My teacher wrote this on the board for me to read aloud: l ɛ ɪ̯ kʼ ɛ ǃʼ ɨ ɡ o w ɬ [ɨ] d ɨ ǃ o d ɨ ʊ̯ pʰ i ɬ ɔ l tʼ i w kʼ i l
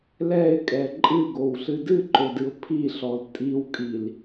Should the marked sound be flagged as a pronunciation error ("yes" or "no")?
no